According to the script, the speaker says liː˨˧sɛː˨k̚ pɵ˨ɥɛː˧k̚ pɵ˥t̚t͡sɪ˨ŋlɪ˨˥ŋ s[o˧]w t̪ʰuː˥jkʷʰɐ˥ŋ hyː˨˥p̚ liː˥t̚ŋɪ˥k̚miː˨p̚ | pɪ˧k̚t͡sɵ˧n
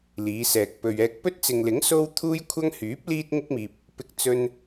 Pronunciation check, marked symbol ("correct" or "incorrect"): incorrect